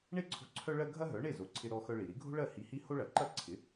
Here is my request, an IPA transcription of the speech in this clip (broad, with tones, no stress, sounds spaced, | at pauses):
ɳ e˥˩ ǀʰ o̤˧ ǀʰ œ˥ ɭ ɜ˥ ɡʱ ɐ˥ ɦ œ˩˥ ɳ e˥˩ z o˩˥ ǀʰ ɪ˧ ɾ ɔ˧ x œ˧ ɭ i˩ ɾ i˩˥ ɡʱ o̤˥ ɭ ɜ˥˩ h i˧ h i˥ h o˥ ɭ ɐ˩˥ ǃ ɐ˥ ǀʰ ɪ˩˥